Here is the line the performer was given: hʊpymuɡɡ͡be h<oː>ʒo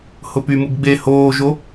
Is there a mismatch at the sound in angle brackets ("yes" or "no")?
no